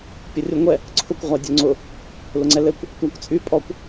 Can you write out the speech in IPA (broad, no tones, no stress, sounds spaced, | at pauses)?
pʲ ʊ rʲ u ŋʷ ɛ | ǀʰ ʊ kʷ ʁʷ a dʲ ɵ ŋ͡ǀ ʊ | l ʊ ŋ͡ǀ ɛ l ɘ kʷ | tʷ a kʷ t͡sʼ y pʼ ɔ kʷ